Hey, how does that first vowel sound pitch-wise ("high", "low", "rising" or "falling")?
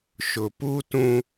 low